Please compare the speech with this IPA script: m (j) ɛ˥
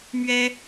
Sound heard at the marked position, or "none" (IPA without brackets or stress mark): ɥ